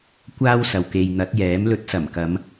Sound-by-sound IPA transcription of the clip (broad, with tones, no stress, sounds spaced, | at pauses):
kʷ aː˥ w s ɐ˨ w k e˨ j n̪ ɐ˨˥ t̚ j ɛː˨˥ m l ɵ˨˥ t̚ s ɐ˨˩ m k ɐ˨˧ m